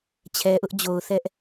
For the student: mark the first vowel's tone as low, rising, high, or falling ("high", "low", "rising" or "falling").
low